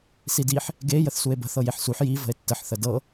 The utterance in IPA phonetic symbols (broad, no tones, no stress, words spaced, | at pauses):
sidiħ | ɡe jəθsue̯bə̤ θɤjeħsuħ ji və̤e̯tːəħ θədɤ